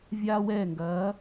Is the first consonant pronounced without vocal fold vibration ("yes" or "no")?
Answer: no